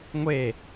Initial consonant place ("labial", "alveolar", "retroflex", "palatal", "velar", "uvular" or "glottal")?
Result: velar